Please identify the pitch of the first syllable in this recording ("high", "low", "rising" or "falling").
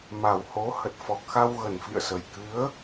low